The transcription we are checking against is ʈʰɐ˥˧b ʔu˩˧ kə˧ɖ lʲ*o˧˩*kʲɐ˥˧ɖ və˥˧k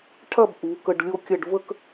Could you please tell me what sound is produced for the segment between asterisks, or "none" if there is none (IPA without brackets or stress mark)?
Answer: o˥˧